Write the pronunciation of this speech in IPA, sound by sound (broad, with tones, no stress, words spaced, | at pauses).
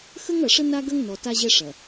xə˦ŋɐ˨ʂə˦ na˦ ɡɐ˦ŋnɔ˨ ta˦ʑɛ˦ʂɐ˨